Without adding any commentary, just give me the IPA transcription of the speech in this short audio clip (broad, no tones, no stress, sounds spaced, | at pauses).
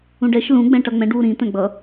ũ ɖ ɛ ʃ l ũ ɡ͡b ɛ̃ ʈ ʌ ŋ͡m ɛ̃ ɖ w u ɾ ĩ t̪ ɛ̃ ɡ͡b ʌ